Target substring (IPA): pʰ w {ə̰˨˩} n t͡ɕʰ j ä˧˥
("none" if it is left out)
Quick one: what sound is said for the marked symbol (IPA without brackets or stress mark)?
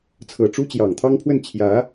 ə˥˩